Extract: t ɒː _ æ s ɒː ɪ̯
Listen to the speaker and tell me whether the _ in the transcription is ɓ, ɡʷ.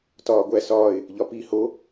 ɡʷ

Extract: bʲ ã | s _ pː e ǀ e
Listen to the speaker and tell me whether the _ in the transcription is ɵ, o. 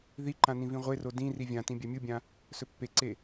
ɵ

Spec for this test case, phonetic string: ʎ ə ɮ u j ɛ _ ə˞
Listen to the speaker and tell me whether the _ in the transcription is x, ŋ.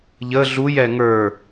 ŋ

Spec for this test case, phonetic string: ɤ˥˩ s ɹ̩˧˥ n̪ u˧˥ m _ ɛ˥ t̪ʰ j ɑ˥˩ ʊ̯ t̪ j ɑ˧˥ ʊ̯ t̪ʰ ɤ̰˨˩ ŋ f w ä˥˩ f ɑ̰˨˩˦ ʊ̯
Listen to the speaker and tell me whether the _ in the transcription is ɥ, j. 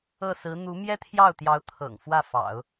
j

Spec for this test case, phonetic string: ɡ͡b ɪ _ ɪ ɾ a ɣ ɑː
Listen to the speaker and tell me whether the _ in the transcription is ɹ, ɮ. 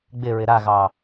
ɹ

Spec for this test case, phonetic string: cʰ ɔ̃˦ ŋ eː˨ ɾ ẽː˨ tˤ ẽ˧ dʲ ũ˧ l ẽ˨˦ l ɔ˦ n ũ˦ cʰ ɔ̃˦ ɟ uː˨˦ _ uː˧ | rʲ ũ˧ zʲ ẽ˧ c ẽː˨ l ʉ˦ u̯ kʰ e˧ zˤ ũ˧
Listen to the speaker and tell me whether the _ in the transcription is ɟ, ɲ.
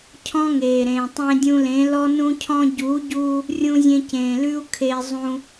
ɟ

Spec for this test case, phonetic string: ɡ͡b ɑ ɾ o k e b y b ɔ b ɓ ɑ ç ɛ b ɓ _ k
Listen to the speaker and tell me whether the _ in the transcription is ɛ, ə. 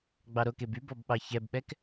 ɛ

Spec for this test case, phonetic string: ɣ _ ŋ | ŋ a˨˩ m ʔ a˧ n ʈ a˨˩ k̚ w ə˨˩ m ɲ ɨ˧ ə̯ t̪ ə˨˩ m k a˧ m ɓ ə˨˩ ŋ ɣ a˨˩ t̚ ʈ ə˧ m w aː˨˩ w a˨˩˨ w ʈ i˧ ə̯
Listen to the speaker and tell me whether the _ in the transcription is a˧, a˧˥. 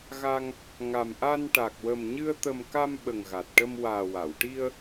a˧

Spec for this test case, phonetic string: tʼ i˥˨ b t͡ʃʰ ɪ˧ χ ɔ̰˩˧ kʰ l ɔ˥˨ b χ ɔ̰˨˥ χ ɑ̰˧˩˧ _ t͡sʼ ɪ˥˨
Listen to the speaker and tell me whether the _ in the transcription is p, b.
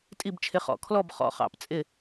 p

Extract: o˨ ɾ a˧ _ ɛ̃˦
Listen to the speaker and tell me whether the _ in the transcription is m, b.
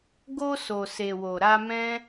m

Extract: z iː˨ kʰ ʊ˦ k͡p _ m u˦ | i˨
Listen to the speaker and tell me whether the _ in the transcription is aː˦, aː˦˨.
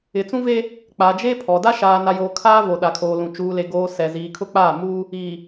aː˦˨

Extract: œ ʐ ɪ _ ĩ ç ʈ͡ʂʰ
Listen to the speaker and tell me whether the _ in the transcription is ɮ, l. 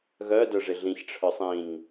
ɮ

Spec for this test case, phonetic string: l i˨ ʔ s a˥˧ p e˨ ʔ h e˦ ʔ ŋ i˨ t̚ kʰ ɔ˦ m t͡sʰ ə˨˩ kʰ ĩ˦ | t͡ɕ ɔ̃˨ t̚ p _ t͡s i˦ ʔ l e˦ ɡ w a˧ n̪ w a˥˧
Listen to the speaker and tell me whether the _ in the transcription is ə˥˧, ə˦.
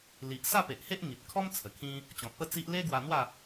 ə˥˧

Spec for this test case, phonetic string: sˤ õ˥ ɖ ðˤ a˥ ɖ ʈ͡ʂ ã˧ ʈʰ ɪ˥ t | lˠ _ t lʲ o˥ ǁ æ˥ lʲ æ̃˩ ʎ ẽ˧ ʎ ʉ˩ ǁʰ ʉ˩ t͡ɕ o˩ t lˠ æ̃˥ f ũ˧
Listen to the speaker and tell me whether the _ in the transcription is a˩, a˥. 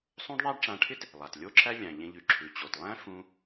a˩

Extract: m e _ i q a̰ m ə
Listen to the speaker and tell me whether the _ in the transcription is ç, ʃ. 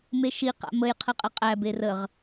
ʃ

